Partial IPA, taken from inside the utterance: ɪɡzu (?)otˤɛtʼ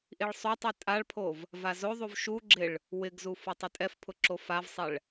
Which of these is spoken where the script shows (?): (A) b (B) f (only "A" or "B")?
B